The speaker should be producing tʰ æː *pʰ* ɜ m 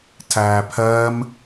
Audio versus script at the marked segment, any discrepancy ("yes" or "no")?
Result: no